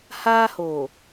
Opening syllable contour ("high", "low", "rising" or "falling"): high